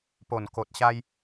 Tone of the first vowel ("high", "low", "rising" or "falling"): low